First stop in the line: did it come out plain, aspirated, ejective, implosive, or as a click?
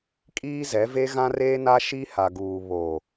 ejective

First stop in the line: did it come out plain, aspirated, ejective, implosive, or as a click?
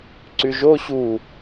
click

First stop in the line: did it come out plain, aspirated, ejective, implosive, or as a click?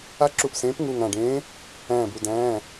click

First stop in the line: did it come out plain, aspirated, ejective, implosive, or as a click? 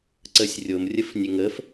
click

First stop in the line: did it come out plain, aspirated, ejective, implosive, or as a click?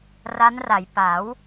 plain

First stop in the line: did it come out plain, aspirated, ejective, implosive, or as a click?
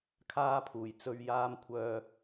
aspirated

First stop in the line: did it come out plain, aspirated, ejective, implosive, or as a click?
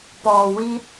plain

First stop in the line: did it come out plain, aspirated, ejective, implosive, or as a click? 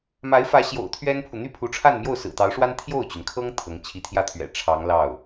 aspirated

